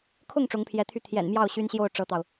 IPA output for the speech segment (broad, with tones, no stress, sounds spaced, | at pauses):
kʰ ʊ˥˩ ŋ ʈ͡ʂ ʊ˧˥ ŋ pʰ j ɛ˧˥ t̪ʰ y˥˩ t̪ʰ j ɛ̰˨˩ n m j ɑ˥˩ ʊ̯ ɕ y˥ n ɕ j o˥˩ ʊ̯ ʈ͡ʂ ɤ˥ t̪ ɑ˨ ʊ̯